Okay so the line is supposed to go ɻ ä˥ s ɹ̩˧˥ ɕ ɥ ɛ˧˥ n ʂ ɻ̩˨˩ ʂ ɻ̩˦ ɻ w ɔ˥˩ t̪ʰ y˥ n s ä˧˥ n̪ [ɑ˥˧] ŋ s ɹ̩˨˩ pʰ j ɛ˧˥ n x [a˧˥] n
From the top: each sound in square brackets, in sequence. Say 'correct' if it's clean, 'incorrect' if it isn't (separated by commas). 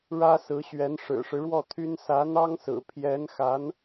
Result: incorrect, correct